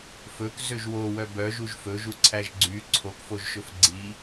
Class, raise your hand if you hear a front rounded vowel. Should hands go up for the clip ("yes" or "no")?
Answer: yes